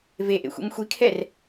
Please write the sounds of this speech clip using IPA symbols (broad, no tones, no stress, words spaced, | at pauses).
veʔḛxʷḭm xʷikʰɛr